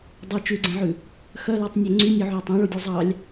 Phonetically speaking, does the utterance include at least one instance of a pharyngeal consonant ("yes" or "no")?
yes